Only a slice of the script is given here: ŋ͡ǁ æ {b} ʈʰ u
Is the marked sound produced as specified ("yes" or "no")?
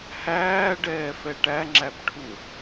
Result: yes